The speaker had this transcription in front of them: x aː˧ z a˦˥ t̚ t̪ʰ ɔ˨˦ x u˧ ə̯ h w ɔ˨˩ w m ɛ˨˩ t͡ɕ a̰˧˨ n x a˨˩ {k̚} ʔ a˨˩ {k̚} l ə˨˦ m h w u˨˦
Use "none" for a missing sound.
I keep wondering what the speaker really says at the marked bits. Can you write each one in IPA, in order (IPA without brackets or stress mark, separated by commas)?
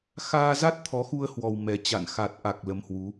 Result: t̚, k̚